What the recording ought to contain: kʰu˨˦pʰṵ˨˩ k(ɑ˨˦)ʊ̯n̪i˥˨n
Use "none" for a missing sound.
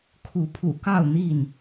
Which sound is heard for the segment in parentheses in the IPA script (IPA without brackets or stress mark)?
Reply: ɑ˥˨